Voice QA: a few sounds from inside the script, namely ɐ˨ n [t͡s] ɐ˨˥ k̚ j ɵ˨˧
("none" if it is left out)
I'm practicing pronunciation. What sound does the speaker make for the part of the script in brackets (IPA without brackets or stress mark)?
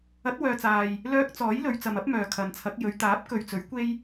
t͡sʰ